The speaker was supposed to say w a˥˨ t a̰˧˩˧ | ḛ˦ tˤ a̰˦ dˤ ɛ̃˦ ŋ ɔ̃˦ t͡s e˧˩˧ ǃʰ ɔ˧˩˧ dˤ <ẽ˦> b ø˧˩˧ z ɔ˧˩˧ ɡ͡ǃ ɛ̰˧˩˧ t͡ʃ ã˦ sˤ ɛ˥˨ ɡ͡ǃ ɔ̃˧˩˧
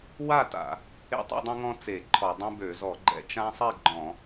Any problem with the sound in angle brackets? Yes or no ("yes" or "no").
no